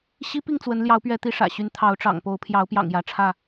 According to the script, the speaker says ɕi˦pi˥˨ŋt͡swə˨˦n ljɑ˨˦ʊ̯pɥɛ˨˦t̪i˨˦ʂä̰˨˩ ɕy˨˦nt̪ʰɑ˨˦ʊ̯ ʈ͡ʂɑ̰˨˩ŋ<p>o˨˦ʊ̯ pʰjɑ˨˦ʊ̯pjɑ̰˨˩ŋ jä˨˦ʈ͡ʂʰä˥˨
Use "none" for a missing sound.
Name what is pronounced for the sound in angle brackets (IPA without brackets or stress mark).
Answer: p